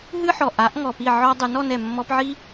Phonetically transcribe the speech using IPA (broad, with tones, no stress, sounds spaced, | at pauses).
ɦ ɨ˦ ħ ɔ˨ ʔ a˨˦ ʔ ŋ ɔ˨ p i˦˨ ʕ ɔ˧ dˤ ɨ˨˦ n ɔ˧ n ɛ˨ mː ɔ˧ p ʕ i˦